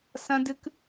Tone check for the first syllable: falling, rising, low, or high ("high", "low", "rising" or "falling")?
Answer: high